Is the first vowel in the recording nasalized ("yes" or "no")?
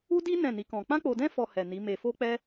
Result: no